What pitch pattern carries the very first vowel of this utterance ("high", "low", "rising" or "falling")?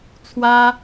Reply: high